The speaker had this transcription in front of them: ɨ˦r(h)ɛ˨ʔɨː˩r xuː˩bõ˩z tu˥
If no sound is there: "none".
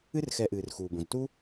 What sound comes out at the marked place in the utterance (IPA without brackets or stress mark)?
x